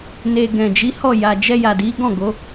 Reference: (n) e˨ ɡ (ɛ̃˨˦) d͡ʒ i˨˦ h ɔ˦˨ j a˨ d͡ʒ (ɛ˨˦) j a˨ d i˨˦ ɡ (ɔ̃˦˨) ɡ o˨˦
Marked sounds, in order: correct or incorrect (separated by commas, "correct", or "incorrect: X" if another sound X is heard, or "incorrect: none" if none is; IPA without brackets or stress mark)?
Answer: correct, incorrect: ɛ̃˨, incorrect: ɛ˧, correct